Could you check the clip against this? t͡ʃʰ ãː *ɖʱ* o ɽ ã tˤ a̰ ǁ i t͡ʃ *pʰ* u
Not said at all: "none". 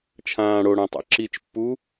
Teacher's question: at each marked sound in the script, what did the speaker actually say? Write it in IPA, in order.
ɽ, pː

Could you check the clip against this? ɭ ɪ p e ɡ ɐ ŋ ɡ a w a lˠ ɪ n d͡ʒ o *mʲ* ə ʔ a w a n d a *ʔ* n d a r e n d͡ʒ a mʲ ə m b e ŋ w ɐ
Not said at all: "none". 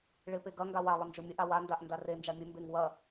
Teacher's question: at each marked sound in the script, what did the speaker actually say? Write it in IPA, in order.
mʲ, ʔ

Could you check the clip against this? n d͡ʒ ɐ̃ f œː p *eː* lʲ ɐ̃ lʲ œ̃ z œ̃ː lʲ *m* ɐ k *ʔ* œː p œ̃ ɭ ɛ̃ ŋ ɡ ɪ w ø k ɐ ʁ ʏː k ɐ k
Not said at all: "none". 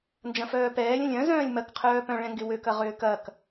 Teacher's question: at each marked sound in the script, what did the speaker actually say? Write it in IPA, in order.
ɛː, m, qʰ

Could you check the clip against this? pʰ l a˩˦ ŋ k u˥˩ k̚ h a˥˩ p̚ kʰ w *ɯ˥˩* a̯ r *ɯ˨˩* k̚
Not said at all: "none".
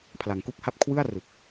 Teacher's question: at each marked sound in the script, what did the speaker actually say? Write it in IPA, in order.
ɯ˥˩, ɯ˨˩

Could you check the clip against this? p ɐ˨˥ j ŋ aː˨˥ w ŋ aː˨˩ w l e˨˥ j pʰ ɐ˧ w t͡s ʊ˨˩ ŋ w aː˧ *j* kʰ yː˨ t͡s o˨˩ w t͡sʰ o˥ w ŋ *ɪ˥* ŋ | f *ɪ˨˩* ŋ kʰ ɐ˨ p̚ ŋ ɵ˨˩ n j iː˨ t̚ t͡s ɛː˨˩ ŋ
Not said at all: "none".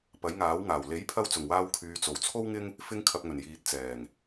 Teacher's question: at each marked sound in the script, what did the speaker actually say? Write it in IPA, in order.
w, ɪ˥, ɪ˧

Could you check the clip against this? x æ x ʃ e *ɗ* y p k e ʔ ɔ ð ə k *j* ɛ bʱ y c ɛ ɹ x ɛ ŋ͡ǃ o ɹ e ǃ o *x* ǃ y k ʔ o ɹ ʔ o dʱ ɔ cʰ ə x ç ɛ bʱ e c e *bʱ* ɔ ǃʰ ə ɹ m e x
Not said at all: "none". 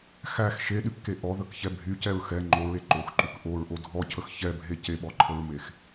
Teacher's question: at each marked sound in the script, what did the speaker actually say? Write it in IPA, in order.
ɗ, ç, x, ɓ

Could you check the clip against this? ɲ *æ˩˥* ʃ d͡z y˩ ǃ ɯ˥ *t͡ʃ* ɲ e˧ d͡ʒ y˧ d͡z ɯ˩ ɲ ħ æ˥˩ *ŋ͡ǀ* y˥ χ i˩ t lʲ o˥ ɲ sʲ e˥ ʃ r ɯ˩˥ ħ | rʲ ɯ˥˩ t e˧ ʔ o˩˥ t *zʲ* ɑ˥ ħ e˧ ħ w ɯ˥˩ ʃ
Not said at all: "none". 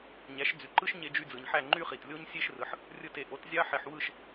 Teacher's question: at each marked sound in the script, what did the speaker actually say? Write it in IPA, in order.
æ˩˥, ʃ, ŋ͡ǃ, zʲ

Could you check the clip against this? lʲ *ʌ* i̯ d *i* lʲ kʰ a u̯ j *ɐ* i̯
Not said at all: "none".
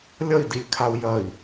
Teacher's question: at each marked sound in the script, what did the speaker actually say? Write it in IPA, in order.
ʌ, i, ɐ

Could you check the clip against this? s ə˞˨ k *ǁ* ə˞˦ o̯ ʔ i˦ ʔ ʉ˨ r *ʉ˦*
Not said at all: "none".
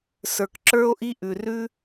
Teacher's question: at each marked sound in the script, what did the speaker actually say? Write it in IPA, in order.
ǁ, ʉ˦

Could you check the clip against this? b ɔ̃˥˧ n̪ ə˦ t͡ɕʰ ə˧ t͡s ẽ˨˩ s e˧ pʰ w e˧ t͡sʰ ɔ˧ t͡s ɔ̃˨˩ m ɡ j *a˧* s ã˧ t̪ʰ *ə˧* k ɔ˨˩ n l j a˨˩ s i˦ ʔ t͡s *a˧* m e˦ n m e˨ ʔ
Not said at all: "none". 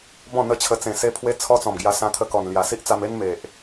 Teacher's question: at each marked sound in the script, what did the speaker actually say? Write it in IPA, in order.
a˧, ə˧, a˧

